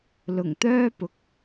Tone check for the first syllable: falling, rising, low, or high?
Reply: low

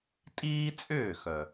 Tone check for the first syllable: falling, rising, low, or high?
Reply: high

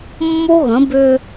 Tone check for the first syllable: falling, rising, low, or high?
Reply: high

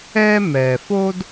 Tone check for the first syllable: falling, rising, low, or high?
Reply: high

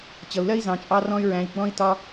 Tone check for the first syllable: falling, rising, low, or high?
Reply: low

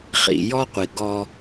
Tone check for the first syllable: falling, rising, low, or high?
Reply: low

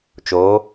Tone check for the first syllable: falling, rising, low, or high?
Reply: rising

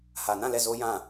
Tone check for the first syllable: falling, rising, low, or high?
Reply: low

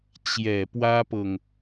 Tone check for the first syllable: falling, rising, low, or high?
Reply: low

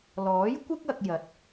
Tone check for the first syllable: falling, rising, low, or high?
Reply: rising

